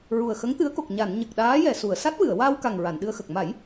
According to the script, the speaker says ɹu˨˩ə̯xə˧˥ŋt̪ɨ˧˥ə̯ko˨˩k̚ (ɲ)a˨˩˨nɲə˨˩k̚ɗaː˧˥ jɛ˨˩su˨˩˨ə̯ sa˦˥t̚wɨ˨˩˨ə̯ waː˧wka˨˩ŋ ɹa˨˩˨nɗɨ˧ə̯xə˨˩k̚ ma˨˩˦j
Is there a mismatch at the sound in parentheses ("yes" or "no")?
no